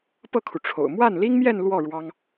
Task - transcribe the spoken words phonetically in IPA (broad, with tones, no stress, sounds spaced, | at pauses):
p ɤ˥˩ kʰ u˩ ʈ͡ʂʰ o̰˨˩ ʊ̯ m w a˥˩ n l i˥ ŋ m j ɛ˥˧ n l w ɔ˥˩ ɻ w ɑ˥ ŋ